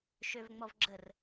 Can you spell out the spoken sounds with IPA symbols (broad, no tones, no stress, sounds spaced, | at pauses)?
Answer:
ʃ ø v ŋ͡m ɔ v ɡ͡ǁ ə r